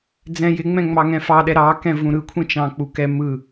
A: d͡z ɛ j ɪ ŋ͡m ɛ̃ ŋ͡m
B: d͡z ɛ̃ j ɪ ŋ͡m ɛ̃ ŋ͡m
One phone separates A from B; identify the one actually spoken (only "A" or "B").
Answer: B